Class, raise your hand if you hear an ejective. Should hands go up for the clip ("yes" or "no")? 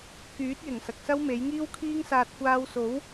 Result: no